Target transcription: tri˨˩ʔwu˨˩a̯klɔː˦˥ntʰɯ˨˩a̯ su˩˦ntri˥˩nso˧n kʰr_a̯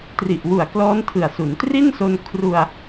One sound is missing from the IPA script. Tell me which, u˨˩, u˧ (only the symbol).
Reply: u˧